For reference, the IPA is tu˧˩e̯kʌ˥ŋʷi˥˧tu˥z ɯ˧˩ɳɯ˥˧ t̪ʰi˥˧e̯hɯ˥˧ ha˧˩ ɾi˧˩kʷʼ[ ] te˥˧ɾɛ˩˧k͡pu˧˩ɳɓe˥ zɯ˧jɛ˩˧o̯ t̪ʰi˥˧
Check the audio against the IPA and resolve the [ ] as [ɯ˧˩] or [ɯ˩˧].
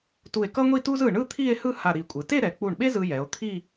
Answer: ɯ˩˧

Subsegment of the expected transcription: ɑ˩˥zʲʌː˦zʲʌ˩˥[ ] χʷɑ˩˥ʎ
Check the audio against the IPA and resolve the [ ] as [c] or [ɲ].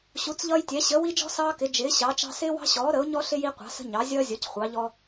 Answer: c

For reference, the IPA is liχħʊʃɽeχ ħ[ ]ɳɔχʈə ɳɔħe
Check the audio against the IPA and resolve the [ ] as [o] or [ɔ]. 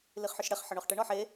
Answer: ɔ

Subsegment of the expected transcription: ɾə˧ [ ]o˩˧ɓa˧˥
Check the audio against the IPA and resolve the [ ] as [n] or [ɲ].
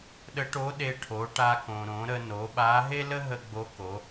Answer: n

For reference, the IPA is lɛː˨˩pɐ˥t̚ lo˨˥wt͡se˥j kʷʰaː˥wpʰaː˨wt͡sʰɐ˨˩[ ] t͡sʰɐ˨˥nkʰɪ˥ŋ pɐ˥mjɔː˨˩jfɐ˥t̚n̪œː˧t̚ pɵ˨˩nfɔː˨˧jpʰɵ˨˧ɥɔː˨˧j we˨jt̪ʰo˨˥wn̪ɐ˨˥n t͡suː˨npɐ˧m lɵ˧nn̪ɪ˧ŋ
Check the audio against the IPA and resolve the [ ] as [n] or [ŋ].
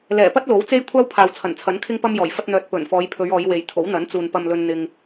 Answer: n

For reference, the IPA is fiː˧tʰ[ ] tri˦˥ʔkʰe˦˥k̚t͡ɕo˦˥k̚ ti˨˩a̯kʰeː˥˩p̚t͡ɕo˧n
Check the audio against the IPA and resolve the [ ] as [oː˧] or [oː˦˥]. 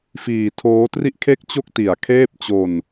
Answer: oː˦˥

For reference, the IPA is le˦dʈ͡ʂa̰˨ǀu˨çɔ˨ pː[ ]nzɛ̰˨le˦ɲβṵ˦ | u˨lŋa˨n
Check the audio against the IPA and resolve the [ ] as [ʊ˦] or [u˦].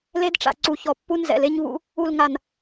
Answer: u˦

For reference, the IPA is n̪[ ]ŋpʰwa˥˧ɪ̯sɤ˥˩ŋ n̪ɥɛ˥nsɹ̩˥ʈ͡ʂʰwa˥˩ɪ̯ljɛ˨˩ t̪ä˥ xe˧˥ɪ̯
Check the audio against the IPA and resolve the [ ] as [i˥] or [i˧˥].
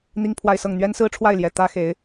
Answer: i˥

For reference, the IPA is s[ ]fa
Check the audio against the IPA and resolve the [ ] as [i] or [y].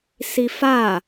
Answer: i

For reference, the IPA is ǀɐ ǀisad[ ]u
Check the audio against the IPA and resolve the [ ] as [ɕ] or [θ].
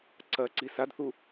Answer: θ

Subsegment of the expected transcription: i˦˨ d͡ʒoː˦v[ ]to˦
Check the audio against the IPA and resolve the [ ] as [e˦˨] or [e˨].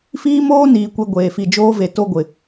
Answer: e˨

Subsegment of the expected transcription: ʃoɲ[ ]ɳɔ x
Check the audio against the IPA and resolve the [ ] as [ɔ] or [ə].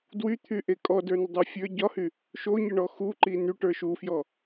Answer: ə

